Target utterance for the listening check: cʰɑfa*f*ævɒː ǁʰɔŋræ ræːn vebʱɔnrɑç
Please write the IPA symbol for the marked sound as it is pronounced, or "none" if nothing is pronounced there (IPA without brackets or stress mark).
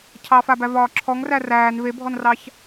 b